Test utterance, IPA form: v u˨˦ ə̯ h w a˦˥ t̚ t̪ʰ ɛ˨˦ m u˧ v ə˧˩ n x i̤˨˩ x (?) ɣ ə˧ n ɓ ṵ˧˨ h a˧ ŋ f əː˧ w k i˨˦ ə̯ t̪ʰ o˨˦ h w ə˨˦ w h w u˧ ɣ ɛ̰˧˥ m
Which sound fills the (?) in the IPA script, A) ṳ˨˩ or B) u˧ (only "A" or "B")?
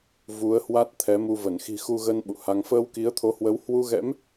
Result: B